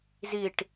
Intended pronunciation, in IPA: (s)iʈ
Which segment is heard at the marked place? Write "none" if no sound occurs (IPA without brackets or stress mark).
z